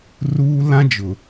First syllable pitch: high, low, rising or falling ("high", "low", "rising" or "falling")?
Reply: high